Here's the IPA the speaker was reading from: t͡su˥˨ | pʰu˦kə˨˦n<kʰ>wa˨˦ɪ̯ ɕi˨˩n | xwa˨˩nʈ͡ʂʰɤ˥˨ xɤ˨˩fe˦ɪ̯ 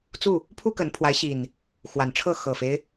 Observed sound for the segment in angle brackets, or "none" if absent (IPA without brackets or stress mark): pʰ